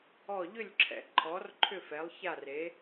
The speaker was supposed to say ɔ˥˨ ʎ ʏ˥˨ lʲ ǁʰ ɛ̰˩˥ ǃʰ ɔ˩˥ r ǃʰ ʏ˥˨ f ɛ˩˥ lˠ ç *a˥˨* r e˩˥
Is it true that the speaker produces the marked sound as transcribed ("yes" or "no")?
yes